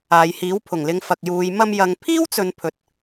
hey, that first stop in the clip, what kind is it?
aspirated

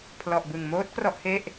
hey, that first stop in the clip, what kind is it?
aspirated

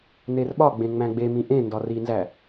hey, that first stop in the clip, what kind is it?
implosive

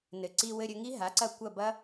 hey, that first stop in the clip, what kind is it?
click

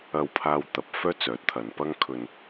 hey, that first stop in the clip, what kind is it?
aspirated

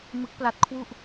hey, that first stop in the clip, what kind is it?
plain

